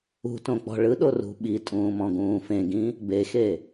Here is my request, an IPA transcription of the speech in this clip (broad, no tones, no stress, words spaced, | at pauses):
ṳtõk͡pɔ̤ ɭɯɗorṳ ɓitʼũːmɔ̃ɡũː fẽɡĩ | bexe